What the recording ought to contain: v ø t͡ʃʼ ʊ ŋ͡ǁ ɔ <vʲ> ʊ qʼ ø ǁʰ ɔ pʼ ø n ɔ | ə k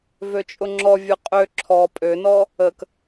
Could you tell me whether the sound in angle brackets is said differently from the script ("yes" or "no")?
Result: no